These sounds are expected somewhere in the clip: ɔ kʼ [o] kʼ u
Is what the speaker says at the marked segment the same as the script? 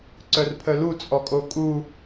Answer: yes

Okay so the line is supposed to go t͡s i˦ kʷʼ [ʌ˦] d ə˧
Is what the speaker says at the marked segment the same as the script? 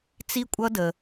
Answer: yes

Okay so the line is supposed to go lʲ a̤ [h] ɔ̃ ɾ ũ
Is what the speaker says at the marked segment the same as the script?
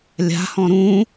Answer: yes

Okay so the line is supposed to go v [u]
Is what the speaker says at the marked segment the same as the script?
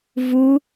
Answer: yes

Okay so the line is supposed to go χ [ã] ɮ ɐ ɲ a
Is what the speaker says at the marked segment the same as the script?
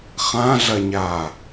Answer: yes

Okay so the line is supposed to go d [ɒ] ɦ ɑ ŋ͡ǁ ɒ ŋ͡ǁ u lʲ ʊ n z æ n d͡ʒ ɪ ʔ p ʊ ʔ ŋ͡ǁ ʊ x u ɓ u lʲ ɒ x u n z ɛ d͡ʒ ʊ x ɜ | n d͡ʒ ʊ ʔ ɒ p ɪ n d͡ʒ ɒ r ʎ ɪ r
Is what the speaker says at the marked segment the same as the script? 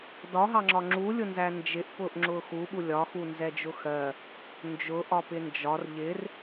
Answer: yes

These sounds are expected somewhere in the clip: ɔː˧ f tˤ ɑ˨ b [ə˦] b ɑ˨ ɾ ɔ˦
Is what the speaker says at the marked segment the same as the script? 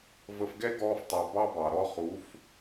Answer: no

